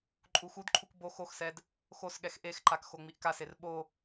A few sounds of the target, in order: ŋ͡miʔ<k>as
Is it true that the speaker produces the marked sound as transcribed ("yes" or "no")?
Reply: yes